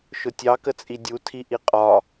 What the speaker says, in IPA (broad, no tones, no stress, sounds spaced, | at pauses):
ʃ ʊ tʲ ɑ k ə t͡sʼ i dʲ u tʰ i ʔ i qʼ ɒ